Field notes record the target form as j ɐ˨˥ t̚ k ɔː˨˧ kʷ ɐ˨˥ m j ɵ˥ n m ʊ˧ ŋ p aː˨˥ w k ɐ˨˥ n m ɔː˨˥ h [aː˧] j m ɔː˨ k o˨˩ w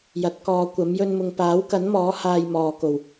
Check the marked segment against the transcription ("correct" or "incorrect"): correct